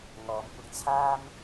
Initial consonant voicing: voiced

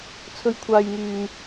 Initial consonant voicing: voiceless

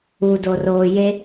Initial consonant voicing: voiced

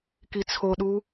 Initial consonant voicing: voiceless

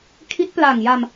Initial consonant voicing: voiceless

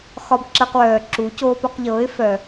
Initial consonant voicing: voiceless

